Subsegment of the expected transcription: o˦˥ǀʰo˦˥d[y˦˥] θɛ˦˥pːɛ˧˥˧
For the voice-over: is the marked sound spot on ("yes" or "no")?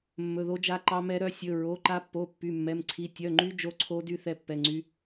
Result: yes